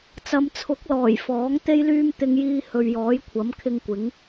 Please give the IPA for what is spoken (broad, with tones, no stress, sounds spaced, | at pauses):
t͡s ɐ˨˧ m t͡sʰ ʊ˨˥ k̚ l ɔː˨˩ j f ɔː˨˥ ŋ t̪ e˥ j l yː˥ m t̪ ɪ˧ ŋ j iː˧ h ɵ˨ ɥ j ɔː˨˥ j kʷʰ ɐ˨˥ m kʰ ɪ˧ ŋ kʷ ɪ˨˥ ŋ